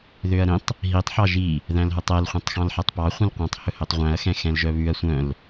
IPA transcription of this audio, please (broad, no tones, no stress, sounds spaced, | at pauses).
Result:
ð ø ɐ̯ ɾ ĩ tˤ | ɦ i tˤ ħ ɑ ʒ i | ð æ̃ l ɦ ɵ tˤ ɛ l χʷ œ̃ tˤ x ɑ̃ l ħ æ tˤ p ɑ χʷ ĩ l qʷ ɑ̃ tˤ h ɵ h ɵ tˤ ʁʷ æ̃ ɐ̯ x ɛ̃ x ɛ̃ l ʒ œ β ʉ ɐ̯ sʷ œ̃ l